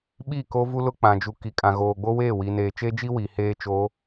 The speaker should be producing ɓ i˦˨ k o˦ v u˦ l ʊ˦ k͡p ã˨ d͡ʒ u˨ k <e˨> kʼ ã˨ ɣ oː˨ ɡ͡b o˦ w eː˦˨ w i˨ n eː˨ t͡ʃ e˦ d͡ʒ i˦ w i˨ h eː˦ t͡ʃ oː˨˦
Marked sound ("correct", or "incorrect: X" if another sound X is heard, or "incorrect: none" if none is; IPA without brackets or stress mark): incorrect: i˨